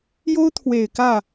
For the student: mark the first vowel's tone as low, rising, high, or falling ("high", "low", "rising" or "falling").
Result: high